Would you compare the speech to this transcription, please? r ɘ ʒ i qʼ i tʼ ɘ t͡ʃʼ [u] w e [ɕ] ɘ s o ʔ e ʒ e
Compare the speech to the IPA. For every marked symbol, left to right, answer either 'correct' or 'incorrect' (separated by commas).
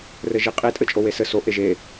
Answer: incorrect, incorrect